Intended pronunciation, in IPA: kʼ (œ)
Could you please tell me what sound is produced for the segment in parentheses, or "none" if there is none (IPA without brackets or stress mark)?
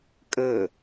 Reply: ə